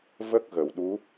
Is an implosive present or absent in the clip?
present